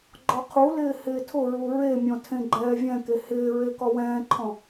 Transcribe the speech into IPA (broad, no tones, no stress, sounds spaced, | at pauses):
ɡ͡ǃ ɔ qʰ u l ɪː h ɪː tʰ ʊ ɹ u ɹ e mʲ ɔ̃ tʰ ẽ ɡ͡ǃ ɛː vʲ ɛ̃ k e h ɪː ɹ e k ɔ w ɛ̃ː ǃʰ ɔ̃